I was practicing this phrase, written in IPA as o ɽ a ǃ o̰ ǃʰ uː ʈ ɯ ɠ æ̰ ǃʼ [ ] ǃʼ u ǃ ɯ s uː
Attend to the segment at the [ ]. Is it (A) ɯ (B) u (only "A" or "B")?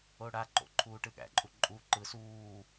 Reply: B